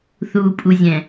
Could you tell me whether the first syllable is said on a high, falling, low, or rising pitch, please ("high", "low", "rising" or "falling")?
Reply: low